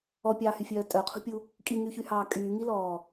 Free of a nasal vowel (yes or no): yes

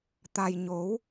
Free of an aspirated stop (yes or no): yes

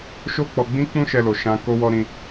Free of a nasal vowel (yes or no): no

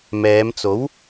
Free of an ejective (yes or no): yes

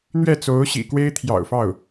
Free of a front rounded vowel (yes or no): yes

